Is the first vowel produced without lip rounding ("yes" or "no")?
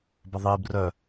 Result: yes